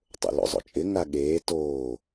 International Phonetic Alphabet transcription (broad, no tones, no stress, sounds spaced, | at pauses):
tˤ o̰ l o̰ zˤ o̰ t͡ʃʼ ɪ ŋ a ɠ eː t oː